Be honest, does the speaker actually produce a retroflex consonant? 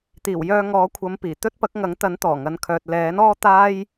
no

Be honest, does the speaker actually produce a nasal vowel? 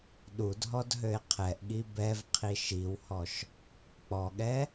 no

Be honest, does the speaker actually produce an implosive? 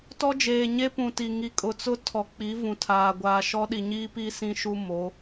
yes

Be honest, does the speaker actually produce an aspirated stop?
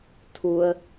yes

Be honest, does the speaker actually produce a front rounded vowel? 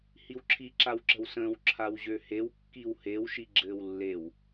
yes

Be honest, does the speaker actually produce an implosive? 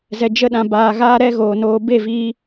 yes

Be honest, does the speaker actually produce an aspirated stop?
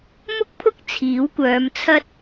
yes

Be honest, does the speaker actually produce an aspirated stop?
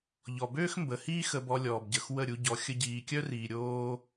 no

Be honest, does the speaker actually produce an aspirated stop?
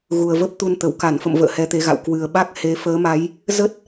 no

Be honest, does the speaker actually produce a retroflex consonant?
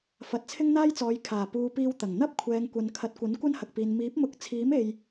no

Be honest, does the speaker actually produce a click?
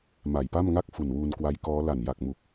no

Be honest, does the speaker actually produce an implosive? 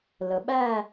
yes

